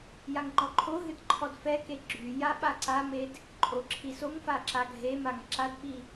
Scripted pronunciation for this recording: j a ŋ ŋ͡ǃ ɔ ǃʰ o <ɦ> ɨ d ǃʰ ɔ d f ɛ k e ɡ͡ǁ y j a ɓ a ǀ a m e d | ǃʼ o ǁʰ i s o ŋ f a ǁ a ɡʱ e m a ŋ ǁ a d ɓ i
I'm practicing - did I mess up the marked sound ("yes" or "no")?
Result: no